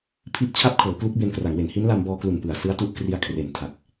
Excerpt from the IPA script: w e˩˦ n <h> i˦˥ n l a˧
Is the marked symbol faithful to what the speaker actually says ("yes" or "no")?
yes